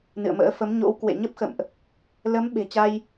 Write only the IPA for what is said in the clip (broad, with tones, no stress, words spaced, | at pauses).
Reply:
nɨ̰˧˨ə̯mə̰ː˧˥ fə˨˦mɲo̰˧˥w kwḛ˧˨ɲə˦˥p̚xə̰˧˨mʔ | lə˨˦m ɓe̤˨˩t͡ɕa˧j